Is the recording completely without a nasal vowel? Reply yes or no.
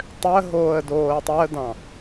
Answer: no